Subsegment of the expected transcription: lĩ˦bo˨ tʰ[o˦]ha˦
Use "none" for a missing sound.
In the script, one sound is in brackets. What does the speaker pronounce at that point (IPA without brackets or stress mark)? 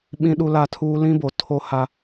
o˦